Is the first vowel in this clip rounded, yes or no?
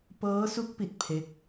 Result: no